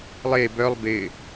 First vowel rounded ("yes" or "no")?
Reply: no